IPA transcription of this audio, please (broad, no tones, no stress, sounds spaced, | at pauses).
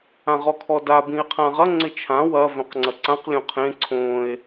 ã ʁ ɔ kʰ ɔ d a b ĩ e̯ qʰ ã ʁ ɐ ŋ͡ǀ ɪ t͡ʃʰ ã w ɐ v œ̃ q ŋ͡ǀ ɐ ǀ ã q lʲ õ qʰ ẽ ǀʰ õ e̯